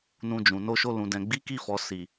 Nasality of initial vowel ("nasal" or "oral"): nasal